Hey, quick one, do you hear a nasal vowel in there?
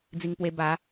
no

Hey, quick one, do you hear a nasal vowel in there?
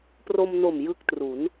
no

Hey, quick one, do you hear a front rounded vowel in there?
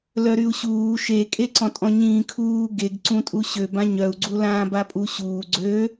yes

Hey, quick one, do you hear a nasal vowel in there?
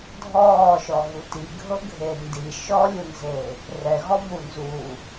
no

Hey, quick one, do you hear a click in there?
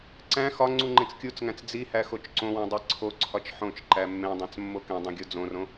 yes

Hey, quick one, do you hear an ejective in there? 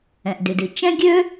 no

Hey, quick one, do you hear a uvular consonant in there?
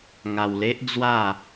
no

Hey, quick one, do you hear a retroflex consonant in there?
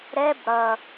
yes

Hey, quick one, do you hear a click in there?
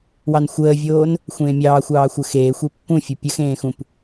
no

